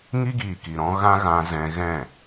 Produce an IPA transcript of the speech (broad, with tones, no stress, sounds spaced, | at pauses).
ŋ i˦ ɡ iː˨ k i˨ ɾ ɔ̃˧ ɣ ã˦ ɣ ã˧ z ɛ̃˧ ɣ ɛ̃˦˨